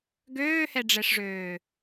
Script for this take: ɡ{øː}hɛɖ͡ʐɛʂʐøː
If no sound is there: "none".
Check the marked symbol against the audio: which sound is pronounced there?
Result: øː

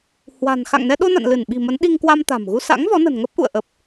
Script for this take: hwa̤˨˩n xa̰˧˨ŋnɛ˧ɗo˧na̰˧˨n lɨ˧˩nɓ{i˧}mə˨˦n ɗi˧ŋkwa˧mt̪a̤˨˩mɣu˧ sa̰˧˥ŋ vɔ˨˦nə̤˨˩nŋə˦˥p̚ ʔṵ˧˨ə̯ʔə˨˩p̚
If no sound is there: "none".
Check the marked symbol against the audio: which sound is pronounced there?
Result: i̤˨˩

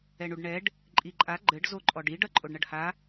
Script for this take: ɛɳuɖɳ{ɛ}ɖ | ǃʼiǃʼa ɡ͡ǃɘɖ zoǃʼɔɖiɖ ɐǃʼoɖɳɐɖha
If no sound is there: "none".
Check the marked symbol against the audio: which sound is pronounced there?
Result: ɛ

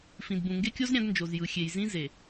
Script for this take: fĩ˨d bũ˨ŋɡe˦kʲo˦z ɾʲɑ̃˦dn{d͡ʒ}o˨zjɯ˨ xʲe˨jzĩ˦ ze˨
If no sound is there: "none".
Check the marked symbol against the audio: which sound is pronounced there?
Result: d͡ʒ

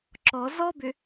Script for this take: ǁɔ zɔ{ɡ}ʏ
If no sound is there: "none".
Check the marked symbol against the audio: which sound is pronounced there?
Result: b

